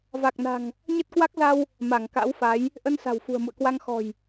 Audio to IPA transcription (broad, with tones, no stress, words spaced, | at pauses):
va˨˩k̚na̤˨˩ŋ | ɲə˦˥t̚kwa˦˥k̚za˧w | ma˧˩ŋka̰˧˥wfa˨˦j | ʔə˧nsa̤˨˩w fṳ˨˩ə̯mṵ˧˨ə̯kwa˧ŋ xɔ̤˨˩j